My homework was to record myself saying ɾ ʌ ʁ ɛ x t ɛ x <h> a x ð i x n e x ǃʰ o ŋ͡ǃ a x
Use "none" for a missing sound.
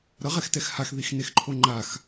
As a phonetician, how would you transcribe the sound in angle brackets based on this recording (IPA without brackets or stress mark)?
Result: h